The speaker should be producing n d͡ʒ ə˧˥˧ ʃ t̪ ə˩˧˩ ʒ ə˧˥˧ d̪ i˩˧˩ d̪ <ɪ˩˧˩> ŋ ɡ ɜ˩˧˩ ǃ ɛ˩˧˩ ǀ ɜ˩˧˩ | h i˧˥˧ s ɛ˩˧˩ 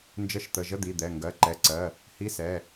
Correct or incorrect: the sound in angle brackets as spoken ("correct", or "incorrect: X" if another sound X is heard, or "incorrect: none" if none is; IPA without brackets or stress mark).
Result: incorrect: ɛ˩˧˩